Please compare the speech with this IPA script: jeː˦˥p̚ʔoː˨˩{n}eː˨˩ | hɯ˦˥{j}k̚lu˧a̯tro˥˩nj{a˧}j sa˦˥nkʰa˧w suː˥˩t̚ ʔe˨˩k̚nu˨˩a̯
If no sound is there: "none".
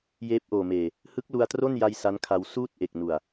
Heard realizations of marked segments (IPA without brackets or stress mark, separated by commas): m, none, a˧